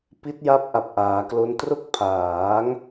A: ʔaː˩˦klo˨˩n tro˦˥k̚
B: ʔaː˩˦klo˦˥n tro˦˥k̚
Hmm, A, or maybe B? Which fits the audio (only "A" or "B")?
B